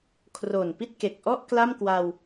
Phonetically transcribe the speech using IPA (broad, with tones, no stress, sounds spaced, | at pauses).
kʰ r oː˨˩ n p i˥˩ t̚ k e˨˩ k̚ ʔ ɔ˥˩ ʔ k l a˥˩ m k w a˧ w